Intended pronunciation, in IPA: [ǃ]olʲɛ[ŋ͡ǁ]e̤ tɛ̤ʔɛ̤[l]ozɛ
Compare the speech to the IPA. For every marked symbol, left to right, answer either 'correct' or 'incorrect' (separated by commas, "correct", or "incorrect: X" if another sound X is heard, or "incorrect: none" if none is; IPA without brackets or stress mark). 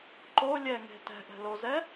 correct, incorrect: ŋ, correct